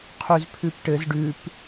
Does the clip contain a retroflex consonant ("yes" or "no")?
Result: yes